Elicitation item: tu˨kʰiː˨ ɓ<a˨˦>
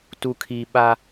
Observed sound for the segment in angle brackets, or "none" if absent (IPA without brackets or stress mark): a˦